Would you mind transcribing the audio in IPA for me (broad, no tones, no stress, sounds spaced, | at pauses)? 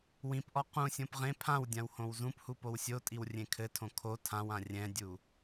w ĩ p ʔ ɔ q ũ sʲ õ p ʁ ẽ pʰ ã w dʲ ã w h õ w z ũ p h u p o w sʲ o tʼ i w rʲ ẽ kʰ ɘ tʰ õ kʰ o tʰ ã w ã rʲ ɛ̃ dʲ u